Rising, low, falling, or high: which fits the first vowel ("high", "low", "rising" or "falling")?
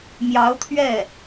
rising